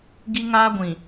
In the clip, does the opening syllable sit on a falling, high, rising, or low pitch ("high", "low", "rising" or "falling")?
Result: high